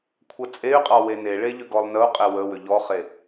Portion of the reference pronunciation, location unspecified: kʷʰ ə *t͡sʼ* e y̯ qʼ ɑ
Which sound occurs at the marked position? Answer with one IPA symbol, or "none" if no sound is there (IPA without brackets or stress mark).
t͡sʼ